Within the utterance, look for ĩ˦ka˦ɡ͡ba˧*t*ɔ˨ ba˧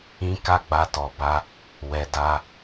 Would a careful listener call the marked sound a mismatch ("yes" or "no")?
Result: no